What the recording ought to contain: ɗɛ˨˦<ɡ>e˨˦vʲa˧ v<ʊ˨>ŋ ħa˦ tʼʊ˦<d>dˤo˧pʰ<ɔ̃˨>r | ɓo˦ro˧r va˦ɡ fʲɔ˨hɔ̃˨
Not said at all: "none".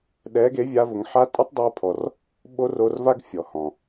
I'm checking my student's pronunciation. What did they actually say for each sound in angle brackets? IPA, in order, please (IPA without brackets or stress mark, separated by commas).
ɡ, ʊ˨, tˤ, ɔ˨